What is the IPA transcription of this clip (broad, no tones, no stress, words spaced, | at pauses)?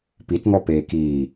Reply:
pitŋɔ peːkiː